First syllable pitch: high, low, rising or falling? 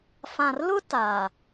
low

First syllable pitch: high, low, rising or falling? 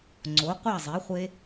rising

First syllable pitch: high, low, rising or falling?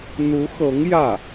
rising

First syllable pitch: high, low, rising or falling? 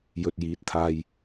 low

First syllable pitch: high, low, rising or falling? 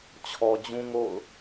low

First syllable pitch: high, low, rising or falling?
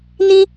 high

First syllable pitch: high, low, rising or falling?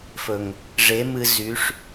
low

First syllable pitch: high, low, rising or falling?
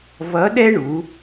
rising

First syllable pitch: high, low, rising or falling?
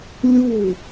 falling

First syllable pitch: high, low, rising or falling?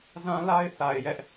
high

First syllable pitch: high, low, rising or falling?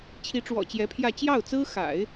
rising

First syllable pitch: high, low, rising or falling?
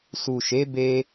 low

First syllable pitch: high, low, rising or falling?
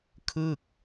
falling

